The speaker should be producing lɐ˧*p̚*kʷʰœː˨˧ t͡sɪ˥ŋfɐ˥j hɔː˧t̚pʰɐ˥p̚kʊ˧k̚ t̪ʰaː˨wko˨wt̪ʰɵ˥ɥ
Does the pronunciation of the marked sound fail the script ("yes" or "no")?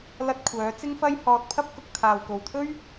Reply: yes